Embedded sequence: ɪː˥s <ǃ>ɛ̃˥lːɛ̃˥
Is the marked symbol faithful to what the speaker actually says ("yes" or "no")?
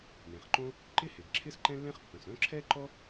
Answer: yes